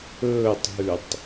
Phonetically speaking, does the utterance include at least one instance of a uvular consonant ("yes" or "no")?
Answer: no